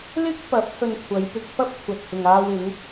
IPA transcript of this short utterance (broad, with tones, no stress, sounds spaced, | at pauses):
l ɪ˥ k̚ p ɐ˨˥ p̚ h ɵ˧ n kʷʰ ɐ˨˧ j p ɪ˧ k̚ f ɐ˥ p̚ kʷʰ ɐ˨ t̚ h ɪ˨ ŋ aː˧ w ɪ˨˧ ŋ